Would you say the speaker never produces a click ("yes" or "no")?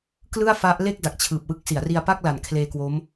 yes